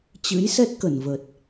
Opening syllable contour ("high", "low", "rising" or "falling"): rising